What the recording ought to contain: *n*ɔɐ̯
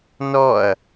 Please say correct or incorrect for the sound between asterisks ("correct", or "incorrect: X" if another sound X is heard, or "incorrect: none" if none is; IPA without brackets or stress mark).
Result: correct